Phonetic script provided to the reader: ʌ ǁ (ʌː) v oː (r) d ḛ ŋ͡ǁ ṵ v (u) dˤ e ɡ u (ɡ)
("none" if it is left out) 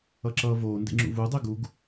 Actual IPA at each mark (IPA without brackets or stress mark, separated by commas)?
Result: ʌː, n, u, ɡ